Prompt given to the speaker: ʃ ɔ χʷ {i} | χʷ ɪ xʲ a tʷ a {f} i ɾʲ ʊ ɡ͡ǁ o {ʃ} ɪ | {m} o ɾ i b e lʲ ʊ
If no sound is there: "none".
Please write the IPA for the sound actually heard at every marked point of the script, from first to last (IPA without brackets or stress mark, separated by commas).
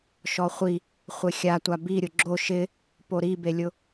i, b, ʃ, p